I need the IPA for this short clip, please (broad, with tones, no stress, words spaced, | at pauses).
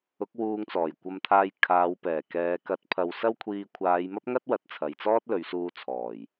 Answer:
ʊ˨˥k̚ wuː˧ŋt͡sɔː˨˩jkʷɐ˧mt̪ʰaː˧j kʰaː˨˧wpɛː˨˩kɛː˨˧ kɐ˨˥t̚pʰɐ˨w sɐ˥wkʷʰiː˧ kʷʰaː˨˧jmɐ˥p̚ŋɐ˥t̚ wɐ˨˥t̚ t͡sʰɐ˨jt͡sɔː˥t̚lɵ˨˧ɥsuː˧ t͡sʰɔː˨˩j